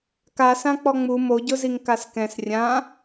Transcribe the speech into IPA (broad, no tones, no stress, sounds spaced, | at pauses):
k a s ã k͡p ɔ ŋ͡m u m o ɟ ʊ z i ŋ k a s k ɛ̃ s rʲ ã